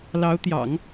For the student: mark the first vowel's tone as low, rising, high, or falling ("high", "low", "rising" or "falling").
rising